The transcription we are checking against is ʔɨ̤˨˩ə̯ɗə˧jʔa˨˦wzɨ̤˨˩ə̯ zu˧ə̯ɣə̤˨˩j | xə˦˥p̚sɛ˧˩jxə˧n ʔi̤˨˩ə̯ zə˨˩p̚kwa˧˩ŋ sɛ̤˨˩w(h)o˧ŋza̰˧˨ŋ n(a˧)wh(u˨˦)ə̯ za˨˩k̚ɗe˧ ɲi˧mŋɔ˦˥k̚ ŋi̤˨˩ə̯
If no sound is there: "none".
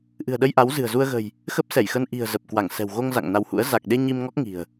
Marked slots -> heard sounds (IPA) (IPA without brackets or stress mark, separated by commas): ɣ, a˧, ṵ˧˥